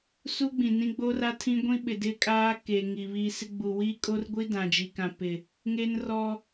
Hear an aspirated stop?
yes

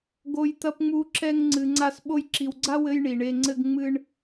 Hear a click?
yes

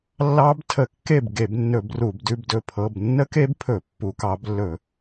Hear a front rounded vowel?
no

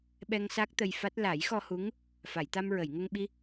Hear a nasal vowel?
no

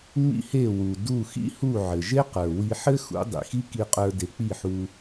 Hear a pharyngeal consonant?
yes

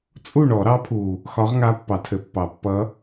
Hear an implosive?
no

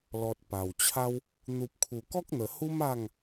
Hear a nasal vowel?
no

